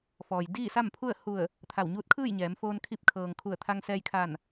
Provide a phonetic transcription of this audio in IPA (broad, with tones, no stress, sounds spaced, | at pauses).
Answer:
f ɔː˩ j d iː˥˨ s a˥˨ m pʰ u˥˨ ə̯ h u˧˩ ə̯ | t̪ʰ a˧˩ w ɲ uː˧˥ t̚ kʰ ɯː˥˨ j ɲ ɛː˩˧ m f oː˧ n kʰ i˧ p̚ kʰ ɤː˩ ŋ kʰ u˧˩ ə̯ t̪ʰ a˧ ŋ s ɛː˧ j kʰ a˧˩ n